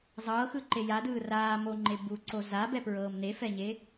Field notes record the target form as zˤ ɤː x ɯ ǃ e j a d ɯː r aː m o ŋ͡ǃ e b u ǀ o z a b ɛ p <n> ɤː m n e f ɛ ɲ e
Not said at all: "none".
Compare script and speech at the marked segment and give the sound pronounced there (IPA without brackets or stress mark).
ɹ